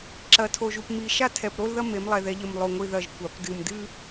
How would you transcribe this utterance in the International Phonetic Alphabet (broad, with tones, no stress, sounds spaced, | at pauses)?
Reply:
ǁ ɐ˩˧ tʰ o˨˩ ʒ u˨˩ p m i˩˧ ʃ a˦ tʰ ɛ˨˩ p ɾ o˦ l ð ɐ˦ m e˩˧ m lˠ ɛ˨˩ ð ɛ˩˧ ʎ ɘ˨˩ m lˠ o˨˩ ŋʷ i˨˩ ð ɐ˨˩ ʒ kʷ a˩˧ p d ɨ˨˩ m d ɨ˦